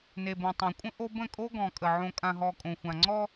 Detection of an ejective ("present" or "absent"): present